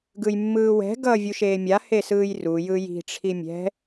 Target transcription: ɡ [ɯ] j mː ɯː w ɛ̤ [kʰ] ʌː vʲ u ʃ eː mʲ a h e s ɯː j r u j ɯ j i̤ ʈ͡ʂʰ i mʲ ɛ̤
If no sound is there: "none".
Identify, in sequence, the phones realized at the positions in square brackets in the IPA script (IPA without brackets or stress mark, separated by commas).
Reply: ɯ, ɡ